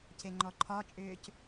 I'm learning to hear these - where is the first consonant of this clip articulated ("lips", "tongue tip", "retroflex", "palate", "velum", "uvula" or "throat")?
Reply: palate